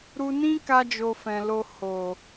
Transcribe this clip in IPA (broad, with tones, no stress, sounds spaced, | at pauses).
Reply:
ɾ u˧ n ĩ˦ k a˧ d͡ʒ o˧ f ɛ̃˨ l o˧ h o˨